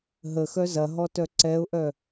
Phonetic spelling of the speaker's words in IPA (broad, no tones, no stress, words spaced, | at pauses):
ɦəxœ zɐɦɔtœ ǀɛʊ̯ʔœ